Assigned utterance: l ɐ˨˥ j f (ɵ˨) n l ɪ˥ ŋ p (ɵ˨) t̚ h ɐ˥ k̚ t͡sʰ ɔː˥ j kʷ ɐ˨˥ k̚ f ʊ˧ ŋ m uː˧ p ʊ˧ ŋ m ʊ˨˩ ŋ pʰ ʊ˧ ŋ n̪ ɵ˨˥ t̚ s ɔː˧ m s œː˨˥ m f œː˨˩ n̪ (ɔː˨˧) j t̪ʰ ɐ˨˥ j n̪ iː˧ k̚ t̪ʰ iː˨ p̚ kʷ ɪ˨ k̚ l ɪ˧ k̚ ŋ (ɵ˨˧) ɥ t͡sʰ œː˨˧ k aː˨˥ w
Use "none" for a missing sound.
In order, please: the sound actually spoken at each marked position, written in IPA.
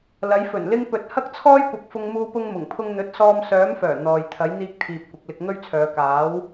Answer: ɵ˨˩, ɵ˨, ɔː˨, ɵ˥

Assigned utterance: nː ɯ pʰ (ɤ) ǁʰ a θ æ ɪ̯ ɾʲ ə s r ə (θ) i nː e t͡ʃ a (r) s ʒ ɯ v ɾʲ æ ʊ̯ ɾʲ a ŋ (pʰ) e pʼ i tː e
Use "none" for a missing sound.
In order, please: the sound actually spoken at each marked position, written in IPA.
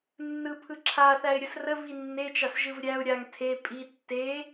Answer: ɯ, v, none, tʰ

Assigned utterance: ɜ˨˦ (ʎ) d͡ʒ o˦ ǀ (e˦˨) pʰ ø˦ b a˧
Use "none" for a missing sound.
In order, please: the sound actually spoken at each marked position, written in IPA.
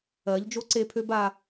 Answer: ʎ, e˦˨

